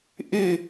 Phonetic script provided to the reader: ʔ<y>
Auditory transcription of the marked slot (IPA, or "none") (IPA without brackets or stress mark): ɪ